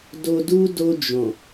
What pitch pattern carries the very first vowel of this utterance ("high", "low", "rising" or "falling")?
low